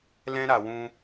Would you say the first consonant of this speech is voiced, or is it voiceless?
voiced